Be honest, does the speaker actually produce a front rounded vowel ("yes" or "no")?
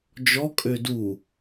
yes